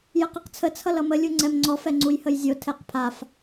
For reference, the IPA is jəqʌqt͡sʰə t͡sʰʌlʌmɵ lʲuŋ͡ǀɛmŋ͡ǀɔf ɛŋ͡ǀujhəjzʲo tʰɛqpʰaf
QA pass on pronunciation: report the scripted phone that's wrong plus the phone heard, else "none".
ɵ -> ə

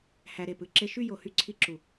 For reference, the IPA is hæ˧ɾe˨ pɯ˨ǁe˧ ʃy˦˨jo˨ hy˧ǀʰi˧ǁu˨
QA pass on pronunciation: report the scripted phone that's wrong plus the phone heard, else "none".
none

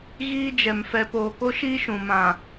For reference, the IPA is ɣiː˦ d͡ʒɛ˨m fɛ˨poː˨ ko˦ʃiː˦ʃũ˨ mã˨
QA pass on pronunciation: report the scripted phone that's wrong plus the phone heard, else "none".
none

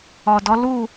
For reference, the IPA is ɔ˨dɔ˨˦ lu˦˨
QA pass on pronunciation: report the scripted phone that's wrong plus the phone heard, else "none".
none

